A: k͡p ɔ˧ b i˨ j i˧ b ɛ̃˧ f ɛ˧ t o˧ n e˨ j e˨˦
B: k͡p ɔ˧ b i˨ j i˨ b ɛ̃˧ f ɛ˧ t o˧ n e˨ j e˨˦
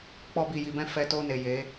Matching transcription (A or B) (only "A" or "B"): B